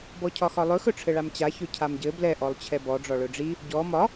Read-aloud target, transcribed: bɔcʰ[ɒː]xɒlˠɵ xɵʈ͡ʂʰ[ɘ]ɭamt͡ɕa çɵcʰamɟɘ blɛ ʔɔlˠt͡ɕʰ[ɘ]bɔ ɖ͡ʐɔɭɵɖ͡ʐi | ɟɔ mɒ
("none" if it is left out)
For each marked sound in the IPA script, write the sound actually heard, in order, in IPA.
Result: ɒ, ɘ, ɛ

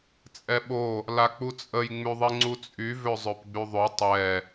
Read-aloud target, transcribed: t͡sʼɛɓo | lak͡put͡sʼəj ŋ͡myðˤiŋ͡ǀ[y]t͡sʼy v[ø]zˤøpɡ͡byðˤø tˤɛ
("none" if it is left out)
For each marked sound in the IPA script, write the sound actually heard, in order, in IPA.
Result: u, ø

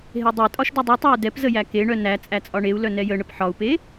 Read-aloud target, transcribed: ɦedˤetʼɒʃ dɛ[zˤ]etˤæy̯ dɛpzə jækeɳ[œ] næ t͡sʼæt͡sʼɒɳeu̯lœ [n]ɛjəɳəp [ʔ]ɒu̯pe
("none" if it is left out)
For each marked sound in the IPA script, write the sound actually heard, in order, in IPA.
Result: dˤ, œ, n, ħ

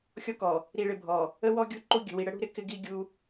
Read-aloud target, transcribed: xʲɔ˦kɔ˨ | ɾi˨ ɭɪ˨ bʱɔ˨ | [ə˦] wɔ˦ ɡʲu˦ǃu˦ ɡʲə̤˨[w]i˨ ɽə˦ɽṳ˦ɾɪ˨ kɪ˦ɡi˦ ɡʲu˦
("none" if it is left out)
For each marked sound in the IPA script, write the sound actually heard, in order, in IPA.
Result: ə˦, w

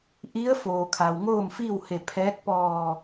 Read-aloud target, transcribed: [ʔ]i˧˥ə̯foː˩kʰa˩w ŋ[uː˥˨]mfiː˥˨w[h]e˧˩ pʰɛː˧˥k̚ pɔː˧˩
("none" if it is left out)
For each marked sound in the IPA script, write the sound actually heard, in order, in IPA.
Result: ʔ, oː˥˨, h

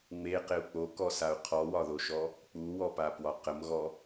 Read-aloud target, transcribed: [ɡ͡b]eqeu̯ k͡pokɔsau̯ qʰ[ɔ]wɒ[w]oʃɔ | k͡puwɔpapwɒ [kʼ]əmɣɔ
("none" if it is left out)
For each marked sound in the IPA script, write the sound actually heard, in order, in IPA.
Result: ŋ͡m, ɔ, ð, q

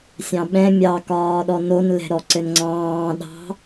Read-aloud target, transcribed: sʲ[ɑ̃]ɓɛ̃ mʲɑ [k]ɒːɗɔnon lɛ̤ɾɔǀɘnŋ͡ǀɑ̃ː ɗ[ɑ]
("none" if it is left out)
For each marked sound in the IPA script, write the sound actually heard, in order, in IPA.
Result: ɑ̃, k, ɑ̤

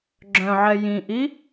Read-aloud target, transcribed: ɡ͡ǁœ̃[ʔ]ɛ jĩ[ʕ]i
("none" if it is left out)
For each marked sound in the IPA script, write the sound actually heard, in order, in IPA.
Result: ʕ, ʔ

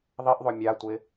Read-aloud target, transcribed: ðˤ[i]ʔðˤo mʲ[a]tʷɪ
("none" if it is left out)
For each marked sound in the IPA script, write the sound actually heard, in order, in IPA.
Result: i, a

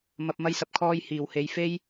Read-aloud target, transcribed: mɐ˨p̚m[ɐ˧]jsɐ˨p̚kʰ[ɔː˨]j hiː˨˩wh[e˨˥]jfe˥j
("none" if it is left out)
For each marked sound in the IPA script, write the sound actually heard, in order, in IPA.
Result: ɐ˧, ɔː˧, e˨˧

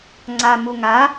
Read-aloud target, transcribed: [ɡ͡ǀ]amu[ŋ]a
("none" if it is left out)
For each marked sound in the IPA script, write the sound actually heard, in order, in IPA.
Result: ŋ͡ǀ, ŋ

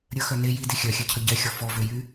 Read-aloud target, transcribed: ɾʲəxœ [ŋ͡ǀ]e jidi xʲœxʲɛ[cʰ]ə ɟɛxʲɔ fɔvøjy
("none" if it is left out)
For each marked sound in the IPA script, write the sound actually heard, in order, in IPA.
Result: n, cʰ

